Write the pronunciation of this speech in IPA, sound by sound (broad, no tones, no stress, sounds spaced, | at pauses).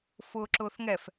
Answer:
f ʊː ǁ ʊː θ ŋ ɛ f